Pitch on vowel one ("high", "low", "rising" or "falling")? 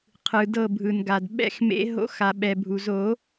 low